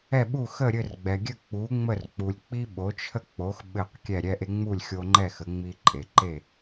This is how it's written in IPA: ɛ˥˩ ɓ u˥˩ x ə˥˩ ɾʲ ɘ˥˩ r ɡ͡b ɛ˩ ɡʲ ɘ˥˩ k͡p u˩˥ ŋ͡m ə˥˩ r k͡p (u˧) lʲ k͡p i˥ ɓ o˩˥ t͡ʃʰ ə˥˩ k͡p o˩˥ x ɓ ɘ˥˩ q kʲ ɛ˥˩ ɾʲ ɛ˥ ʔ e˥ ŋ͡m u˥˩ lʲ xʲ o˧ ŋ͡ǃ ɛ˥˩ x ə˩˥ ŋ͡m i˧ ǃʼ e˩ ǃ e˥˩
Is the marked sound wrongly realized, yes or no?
yes